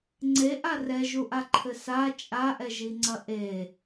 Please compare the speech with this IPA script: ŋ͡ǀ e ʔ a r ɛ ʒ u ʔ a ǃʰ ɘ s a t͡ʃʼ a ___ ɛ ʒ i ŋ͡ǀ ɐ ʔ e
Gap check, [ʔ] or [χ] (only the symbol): ʔ